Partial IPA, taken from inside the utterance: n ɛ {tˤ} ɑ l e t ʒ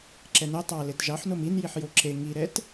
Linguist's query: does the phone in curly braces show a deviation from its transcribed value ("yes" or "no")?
no